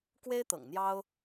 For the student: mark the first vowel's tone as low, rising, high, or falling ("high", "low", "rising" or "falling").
high